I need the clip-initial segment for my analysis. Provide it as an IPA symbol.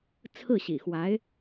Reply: t͡sʰ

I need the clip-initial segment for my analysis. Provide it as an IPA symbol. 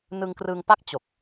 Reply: n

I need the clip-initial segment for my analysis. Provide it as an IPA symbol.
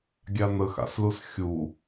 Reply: ɡʲ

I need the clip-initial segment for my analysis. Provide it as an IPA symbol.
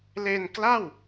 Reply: l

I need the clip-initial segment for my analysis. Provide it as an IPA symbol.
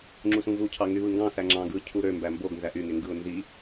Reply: ŋ͡ǁ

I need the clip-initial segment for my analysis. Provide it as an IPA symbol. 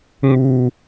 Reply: ŋ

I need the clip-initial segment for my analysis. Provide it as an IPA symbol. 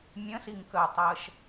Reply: mʲ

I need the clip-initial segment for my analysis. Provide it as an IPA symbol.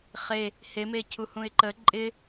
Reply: χ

